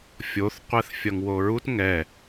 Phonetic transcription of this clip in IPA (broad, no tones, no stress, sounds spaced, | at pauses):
fʲ o θ qʷ ɛ θ fʲ ʌ ŋ w o ɹ u t ŋ ɛ